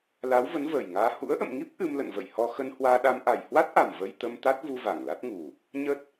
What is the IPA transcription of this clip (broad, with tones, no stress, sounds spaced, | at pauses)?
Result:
l a˨˦ w v ə˨˦ n v əː˨˩ j ŋ aː˧ h ṵ˧˥ ə̯ ʔ ə̰˧˨ m ŋ i˦˥ p̚ ʔ ɨ˧ m l ə̰˧˨ n v ə̰˧˨ j h ɔ˧ x ə˧ n h w aː˧ ɗ a˧ m ʔ a˨˩ j h w a˦˥ t̚ ʔ a˨˩ m v ə˧ j t̪ ə˧ m t̪ a˦˥ t̚ v u˧ v a˧˩ ŋ l a˦˥ t̚ ŋ u˨˩ | ɲ ə˦˥ t̚